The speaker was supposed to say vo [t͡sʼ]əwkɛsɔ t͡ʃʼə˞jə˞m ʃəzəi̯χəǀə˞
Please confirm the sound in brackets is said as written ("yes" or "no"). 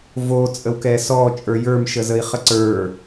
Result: yes